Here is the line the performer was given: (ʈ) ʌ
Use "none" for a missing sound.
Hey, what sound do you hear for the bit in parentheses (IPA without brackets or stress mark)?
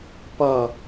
p